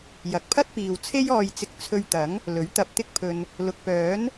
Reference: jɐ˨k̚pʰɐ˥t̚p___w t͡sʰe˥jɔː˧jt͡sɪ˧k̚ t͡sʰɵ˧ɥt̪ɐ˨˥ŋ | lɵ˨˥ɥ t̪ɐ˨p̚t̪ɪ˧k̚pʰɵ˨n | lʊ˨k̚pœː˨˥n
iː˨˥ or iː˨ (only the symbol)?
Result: iː˨